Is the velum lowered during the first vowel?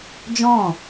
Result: yes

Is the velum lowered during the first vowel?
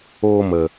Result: no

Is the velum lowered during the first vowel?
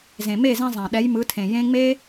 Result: yes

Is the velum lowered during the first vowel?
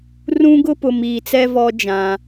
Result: yes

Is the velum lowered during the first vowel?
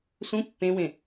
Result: yes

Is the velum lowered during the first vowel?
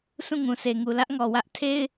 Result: yes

